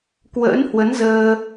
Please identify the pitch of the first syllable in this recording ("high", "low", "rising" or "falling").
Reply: rising